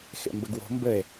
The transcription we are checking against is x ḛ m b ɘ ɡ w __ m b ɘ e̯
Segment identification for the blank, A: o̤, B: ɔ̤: A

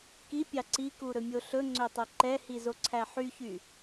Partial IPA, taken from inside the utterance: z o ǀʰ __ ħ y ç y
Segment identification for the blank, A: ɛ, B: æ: B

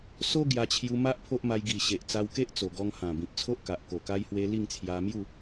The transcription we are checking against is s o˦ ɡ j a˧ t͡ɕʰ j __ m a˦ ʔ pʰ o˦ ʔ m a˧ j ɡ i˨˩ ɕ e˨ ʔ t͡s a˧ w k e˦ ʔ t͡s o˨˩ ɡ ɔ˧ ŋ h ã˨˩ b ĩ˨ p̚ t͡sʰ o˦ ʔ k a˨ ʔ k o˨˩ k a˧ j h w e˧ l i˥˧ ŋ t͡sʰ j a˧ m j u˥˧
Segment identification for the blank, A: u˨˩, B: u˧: B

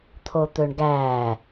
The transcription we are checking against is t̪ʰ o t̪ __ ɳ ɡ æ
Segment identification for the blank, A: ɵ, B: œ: A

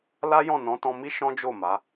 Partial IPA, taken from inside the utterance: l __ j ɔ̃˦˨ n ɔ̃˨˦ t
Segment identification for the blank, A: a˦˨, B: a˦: B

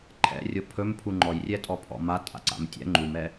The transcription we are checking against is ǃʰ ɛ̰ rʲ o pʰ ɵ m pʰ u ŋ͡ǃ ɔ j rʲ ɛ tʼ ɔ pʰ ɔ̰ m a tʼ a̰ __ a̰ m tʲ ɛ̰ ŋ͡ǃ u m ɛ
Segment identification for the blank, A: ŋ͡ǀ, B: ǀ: B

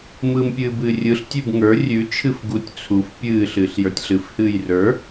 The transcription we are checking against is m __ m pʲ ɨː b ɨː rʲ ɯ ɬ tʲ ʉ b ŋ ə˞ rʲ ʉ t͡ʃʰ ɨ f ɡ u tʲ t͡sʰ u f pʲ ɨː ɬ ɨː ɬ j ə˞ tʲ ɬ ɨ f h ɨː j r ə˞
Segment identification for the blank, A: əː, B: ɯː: B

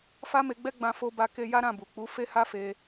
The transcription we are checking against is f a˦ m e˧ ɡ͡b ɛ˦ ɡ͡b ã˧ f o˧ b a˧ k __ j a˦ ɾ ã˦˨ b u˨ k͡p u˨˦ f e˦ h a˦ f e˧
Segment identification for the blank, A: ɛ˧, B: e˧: B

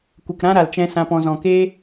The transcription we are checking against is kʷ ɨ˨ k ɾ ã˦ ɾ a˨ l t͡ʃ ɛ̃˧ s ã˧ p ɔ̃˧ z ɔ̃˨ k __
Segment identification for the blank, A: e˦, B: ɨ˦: A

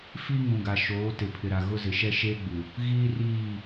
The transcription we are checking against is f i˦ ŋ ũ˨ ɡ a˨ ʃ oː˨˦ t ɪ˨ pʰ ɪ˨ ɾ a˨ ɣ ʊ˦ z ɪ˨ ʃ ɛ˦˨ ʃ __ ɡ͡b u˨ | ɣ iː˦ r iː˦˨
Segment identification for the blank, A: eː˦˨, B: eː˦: B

